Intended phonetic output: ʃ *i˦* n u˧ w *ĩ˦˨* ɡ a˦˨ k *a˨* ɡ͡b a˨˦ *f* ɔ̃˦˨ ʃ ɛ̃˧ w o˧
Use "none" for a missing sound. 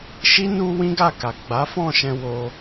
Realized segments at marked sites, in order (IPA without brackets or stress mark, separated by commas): i˦, ĩ˦, a˨, f